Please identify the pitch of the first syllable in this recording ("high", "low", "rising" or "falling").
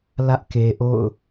high